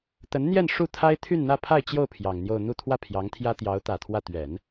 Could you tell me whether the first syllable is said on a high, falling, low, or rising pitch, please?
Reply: rising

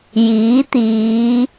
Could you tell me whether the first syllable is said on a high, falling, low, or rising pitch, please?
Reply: rising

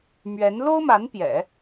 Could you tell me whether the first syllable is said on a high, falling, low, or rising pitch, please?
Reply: rising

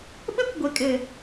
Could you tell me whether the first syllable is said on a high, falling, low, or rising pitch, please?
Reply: high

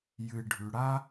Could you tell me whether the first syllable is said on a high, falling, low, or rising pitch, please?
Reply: low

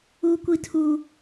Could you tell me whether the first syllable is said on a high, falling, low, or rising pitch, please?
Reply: high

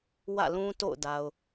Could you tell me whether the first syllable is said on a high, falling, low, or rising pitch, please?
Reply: falling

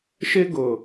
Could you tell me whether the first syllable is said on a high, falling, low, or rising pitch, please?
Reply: high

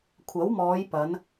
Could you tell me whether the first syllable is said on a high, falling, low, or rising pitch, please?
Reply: rising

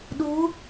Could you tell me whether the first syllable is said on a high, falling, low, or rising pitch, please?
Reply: rising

